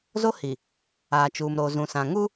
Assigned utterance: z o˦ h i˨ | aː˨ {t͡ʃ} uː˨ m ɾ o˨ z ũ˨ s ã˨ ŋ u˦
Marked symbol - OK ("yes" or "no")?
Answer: yes